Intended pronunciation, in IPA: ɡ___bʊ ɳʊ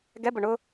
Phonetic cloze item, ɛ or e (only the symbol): ɛ